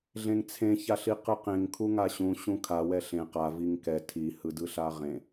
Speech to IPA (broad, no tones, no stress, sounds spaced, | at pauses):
ɮ ẽ ŋ t͡sʰ ẽ ç a ɬ i q ɯ q ẽ ŋ kʰ u ŋ a ɕ ũ ɕ ũ kʰ a w ɛ ɬ ẽ q a v i ŋ k ɛ tʰ i h ɯ d ɯ ɬ a ʁ ẽ